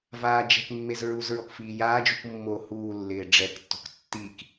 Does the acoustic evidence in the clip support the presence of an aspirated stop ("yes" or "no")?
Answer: no